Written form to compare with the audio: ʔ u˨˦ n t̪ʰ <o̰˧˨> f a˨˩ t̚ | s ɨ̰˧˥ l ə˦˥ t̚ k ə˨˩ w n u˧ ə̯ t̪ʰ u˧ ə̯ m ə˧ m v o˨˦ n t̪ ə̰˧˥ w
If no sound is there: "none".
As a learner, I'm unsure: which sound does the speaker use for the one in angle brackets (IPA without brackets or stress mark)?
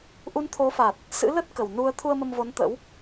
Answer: o˨˦